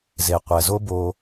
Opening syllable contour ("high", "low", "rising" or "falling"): low